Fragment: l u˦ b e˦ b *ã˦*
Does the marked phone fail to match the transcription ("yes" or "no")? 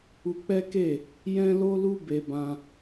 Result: no